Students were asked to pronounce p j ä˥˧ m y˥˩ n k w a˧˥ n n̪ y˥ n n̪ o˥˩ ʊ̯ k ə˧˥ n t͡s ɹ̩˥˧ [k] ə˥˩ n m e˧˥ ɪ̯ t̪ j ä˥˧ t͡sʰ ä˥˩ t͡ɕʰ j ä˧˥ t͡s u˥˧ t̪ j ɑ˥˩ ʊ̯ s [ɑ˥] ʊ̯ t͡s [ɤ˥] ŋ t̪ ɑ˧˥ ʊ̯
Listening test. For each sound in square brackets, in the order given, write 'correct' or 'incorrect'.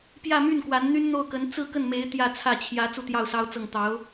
correct, correct, incorrect: ɤ˥˩

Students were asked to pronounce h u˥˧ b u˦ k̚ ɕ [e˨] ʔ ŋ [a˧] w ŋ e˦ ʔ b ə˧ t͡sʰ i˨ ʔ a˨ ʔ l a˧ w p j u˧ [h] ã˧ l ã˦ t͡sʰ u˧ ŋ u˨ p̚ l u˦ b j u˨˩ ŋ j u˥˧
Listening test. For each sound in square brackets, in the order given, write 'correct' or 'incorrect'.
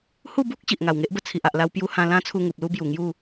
incorrect: i˨, incorrect: a˨˩, correct

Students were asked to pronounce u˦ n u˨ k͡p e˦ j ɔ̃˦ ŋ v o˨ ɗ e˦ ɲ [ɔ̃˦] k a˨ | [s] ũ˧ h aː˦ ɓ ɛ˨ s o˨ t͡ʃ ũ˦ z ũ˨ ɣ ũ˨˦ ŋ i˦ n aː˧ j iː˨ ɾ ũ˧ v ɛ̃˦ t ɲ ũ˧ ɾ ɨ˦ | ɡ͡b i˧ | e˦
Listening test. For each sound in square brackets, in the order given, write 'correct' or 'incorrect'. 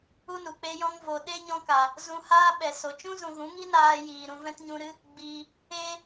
correct, incorrect: z

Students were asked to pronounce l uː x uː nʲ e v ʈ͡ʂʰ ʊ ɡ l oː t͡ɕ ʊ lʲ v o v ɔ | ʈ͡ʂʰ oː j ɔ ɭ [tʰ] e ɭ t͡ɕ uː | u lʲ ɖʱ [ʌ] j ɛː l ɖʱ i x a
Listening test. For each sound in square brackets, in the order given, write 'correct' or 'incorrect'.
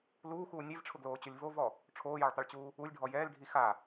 incorrect: tˤ, incorrect: ɔ

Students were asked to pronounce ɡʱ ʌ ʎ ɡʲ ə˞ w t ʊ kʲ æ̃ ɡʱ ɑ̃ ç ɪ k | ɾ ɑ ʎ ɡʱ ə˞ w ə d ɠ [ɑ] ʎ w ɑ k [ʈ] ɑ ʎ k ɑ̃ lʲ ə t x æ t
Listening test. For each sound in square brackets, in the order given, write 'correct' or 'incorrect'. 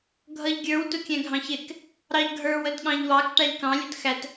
incorrect: ɑ̃, correct

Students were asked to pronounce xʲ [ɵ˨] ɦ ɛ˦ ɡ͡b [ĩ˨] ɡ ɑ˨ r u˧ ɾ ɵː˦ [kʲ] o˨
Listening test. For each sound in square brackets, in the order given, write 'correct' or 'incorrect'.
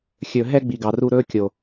correct, incorrect: i˨, correct

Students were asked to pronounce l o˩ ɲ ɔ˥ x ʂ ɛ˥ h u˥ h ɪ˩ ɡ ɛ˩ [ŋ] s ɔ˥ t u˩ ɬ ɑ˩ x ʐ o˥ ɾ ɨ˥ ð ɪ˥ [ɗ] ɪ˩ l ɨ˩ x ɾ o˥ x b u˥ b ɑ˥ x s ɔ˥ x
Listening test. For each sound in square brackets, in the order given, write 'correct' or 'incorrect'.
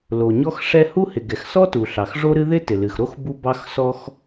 incorrect: x, incorrect: t

